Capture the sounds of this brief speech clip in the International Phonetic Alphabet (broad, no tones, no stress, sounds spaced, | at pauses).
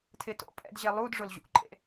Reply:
tʰ ɪ t o̰ pʼ ɛ̰ d ʑ ɛ lˠ u d ʐ ʊ l ʑ ṵ ǃʼ ḛ